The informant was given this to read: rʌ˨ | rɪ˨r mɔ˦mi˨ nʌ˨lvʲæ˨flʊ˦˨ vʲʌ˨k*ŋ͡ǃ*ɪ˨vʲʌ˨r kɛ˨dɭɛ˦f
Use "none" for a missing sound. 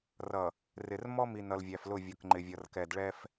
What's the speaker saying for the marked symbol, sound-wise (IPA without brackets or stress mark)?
ŋ͡ǃ